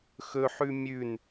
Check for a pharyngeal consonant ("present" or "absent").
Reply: present